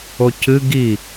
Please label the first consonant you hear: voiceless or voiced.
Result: voiceless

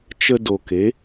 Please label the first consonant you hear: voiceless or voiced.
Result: voiceless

